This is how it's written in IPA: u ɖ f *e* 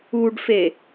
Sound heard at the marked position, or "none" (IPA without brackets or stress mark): e